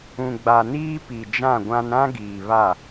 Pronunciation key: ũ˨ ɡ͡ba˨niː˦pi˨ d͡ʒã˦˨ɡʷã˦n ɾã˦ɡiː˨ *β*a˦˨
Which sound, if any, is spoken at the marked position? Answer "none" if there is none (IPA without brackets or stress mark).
β